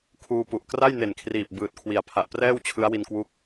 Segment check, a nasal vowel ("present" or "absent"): absent